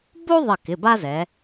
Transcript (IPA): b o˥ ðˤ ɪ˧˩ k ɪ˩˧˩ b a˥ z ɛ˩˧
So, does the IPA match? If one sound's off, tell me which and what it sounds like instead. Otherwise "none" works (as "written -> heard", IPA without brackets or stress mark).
none